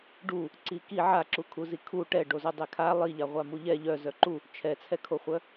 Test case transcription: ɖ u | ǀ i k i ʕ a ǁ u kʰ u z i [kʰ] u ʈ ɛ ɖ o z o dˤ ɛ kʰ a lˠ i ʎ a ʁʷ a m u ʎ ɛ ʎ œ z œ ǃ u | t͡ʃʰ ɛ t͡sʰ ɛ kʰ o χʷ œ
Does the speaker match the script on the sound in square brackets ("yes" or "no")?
yes